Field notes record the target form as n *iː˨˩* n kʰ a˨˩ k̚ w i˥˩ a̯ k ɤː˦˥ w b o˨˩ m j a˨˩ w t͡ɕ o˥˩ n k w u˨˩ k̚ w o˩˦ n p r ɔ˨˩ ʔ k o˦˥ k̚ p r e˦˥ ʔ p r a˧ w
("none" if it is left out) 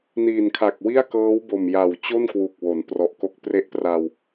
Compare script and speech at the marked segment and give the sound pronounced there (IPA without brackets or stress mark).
iː˨˩